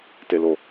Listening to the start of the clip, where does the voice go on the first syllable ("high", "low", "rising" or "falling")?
high